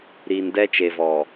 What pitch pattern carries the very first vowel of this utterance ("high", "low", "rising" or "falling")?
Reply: low